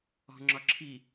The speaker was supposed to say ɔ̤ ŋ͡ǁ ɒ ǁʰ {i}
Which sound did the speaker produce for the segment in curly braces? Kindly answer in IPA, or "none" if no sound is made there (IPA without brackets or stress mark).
i